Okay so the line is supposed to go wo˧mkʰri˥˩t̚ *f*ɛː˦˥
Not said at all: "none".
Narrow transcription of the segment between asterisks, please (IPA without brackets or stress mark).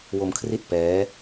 p